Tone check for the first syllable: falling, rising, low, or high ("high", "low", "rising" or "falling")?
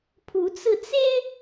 rising